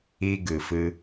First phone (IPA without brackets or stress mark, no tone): i